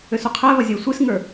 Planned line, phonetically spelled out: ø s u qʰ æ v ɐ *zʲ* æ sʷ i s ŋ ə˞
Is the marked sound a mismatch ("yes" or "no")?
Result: no